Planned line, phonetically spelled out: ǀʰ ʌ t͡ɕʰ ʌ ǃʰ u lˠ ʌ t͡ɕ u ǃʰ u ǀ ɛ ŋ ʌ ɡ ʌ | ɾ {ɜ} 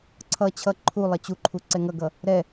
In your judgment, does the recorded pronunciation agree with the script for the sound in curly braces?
no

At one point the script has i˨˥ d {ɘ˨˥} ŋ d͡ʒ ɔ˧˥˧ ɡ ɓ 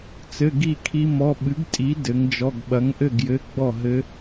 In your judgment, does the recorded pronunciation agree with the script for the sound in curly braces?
yes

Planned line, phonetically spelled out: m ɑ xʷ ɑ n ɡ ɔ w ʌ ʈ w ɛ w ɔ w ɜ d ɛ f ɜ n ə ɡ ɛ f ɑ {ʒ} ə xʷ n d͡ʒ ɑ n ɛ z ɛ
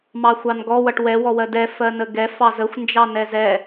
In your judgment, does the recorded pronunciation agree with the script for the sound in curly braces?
no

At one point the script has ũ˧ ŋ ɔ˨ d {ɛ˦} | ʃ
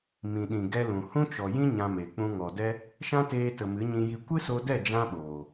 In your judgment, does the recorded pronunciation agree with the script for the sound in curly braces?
yes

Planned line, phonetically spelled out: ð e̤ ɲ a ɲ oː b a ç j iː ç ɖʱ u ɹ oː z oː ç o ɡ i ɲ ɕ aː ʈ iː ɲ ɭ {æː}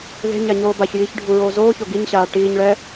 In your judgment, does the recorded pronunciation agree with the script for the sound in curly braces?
no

